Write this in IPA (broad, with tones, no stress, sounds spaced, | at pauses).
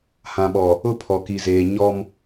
h ã˨ ɓ ɔ˨ | ʊ˦ pʰ ɔ˨ k i˨ z eː˨ ɲ ɔ˦ m